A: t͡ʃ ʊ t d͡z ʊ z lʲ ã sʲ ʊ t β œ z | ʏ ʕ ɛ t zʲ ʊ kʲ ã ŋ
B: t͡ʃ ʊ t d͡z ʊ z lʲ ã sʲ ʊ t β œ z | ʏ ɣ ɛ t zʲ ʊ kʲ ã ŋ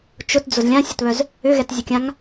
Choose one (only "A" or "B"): B